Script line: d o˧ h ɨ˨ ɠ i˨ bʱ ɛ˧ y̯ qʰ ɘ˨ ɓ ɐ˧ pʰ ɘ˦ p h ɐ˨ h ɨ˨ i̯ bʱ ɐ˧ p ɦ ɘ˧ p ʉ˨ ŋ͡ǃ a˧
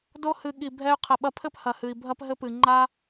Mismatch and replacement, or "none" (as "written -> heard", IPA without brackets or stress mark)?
ʉ˨ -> ɨ˨